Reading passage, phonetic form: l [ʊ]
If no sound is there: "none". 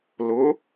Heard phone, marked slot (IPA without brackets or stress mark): ʊ